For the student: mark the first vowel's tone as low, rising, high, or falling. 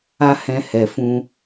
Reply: high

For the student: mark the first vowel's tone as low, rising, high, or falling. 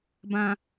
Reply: low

